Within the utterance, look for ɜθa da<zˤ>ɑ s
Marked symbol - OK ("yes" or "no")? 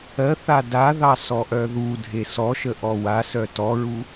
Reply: no